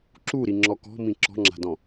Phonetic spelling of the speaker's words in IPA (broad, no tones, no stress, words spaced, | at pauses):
ǁuɾiŋ͡ǁɔ kɔ̤mĩ ǁɔ̤ŋ͡ǁa̤dɔ̃